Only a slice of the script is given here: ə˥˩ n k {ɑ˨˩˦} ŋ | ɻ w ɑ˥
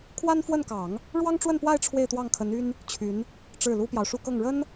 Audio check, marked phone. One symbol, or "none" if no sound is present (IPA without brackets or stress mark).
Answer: ɑ˨˩˦